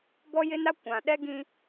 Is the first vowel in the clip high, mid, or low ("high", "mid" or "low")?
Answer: mid